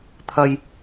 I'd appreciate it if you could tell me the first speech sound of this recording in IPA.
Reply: t̪ʰ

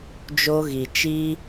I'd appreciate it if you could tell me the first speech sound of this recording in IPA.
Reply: d͡ʒ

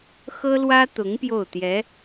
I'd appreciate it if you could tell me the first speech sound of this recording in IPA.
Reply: x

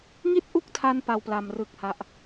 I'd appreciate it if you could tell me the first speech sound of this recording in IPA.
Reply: ŋ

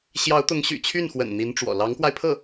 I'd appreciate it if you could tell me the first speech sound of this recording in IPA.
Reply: ɕ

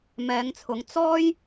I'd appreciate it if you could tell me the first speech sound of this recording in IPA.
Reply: m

